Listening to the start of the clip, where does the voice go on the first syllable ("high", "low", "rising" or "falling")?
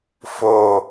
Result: low